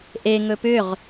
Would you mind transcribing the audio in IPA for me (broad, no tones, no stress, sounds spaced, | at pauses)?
ʔ e ŋ ɵ p ʏ ʁ